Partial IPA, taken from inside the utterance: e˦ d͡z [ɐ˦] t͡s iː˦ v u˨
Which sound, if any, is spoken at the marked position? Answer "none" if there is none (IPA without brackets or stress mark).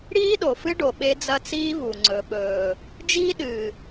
ɐ˦